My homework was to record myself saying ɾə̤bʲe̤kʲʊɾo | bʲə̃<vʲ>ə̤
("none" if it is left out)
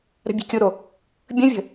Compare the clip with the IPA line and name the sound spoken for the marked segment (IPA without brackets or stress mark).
vʲ